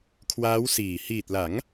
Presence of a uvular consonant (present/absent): absent